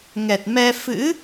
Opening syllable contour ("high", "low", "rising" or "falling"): low